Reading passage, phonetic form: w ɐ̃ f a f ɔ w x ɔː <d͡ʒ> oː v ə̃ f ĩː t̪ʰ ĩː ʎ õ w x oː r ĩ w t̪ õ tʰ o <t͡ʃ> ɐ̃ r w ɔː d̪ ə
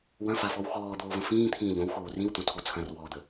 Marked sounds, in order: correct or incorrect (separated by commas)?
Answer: incorrect, incorrect